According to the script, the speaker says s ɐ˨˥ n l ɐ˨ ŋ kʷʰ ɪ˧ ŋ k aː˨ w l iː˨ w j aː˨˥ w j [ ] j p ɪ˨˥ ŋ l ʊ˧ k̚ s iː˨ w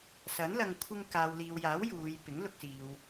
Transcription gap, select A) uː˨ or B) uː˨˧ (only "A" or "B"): B